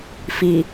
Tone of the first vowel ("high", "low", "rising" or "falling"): low